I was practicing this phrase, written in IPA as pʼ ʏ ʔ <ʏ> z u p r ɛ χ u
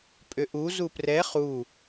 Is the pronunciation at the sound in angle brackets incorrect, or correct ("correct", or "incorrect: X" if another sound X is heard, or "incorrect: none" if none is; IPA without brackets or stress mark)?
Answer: incorrect: u